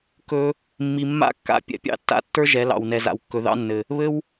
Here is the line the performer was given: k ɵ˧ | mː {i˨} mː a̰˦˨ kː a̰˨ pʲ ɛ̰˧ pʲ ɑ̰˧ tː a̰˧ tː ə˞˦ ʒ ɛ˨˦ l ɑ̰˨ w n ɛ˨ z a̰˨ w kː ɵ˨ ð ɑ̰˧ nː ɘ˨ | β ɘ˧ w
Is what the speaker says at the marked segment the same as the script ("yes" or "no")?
yes